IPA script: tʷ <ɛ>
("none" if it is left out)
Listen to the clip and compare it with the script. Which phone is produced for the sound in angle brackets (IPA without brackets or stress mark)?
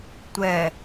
ɛ